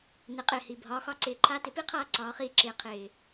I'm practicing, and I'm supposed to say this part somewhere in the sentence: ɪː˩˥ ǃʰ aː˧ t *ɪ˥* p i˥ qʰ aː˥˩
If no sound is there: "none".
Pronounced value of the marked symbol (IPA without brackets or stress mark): ɪ˩˥